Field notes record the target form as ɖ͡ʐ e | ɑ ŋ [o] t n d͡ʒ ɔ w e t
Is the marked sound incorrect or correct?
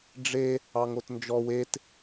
correct